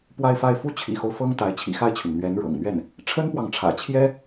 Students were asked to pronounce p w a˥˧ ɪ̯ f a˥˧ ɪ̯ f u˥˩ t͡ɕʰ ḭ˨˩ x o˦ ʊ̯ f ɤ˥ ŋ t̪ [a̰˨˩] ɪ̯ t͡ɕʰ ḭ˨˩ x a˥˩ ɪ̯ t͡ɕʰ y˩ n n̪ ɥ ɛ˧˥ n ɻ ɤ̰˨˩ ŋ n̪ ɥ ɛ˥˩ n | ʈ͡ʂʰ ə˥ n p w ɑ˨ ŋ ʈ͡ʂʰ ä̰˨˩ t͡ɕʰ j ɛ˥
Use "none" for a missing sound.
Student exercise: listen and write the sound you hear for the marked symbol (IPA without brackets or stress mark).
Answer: a˧˥